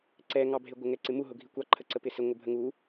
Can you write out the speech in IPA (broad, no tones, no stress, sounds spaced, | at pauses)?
ǀ ɛ ŋ ɑ bʱ ɪ ɡʷ ə ŋ ɛ ǀ ɪ m u ɦ ʊ ɡʱ i kʷ ɑ ǃʰ ə ǀ ə p ɪ s ɪ ŋʷ ə bʱ ə ŋ u